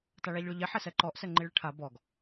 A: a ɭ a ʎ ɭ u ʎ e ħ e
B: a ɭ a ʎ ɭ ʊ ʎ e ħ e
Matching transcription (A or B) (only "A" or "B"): B